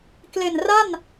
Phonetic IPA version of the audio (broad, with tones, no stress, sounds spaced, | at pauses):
k l e˨˩ n r a˥˩ n